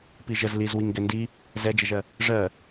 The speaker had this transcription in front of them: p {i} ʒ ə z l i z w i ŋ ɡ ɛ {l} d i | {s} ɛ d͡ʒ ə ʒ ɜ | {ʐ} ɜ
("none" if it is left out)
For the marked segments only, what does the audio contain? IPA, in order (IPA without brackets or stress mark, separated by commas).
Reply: i, n, z, ʐ